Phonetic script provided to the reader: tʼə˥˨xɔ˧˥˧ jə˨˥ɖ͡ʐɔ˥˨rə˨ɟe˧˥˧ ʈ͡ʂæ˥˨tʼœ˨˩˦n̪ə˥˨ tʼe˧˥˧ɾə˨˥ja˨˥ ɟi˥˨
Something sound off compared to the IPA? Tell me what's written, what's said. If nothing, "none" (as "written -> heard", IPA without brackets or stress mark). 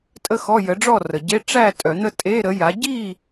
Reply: none